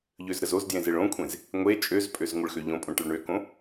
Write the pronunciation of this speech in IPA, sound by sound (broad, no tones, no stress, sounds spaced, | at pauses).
ʎ ø z ɾ ə z o z d j ẽ z e ɭ õ kʷʰ ẽ z | ŋʷ e t͡ʃʼ ø z pʼ ø z ŋʷ ə ɭ x ø ʎ õ pʼ õ ʈ ə ɭ ɳ ø k õ